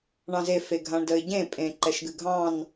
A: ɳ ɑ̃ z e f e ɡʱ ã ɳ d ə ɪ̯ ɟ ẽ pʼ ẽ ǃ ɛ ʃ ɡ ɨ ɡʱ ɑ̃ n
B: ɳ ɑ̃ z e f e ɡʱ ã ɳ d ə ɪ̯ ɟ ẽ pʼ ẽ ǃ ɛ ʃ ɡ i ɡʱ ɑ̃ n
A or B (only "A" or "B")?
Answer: A